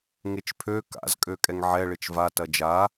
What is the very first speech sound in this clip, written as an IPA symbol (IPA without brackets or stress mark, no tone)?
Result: ŋ